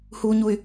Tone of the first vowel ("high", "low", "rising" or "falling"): high